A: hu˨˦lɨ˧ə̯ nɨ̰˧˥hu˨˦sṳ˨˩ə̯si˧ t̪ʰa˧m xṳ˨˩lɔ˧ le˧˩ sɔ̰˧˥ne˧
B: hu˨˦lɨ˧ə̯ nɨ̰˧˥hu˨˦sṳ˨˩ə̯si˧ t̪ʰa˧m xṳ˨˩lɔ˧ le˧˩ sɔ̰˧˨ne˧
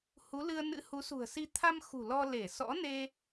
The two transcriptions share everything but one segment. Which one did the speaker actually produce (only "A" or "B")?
A